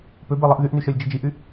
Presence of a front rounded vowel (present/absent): present